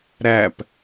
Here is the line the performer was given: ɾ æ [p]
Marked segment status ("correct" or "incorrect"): correct